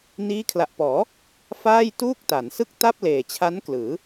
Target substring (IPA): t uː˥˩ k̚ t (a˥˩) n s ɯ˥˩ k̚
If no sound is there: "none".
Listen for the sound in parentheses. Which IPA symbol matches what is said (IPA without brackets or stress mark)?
a˩˦